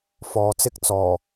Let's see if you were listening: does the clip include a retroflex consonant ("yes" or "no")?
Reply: no